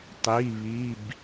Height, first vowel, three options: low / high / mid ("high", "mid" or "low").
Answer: high